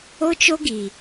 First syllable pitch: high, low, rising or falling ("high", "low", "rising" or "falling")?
high